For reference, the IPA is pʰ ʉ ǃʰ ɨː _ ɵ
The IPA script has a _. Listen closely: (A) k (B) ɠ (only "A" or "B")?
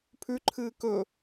A